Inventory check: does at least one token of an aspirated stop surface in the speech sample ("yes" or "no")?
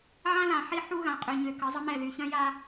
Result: no